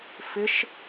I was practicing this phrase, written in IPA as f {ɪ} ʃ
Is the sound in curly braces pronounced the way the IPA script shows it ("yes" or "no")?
yes